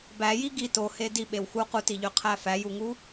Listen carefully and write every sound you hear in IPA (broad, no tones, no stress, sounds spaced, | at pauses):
b æ j i ɡ i t o h e d i ɓ e w x u q u t i ʎ ø qʰ æ f æ j u ŋ u